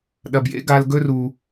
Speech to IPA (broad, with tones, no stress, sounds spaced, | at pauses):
ɗ ɐ˨ b j ḛ˦ ɡ a˧ l ɡ ɵ˦ r u˨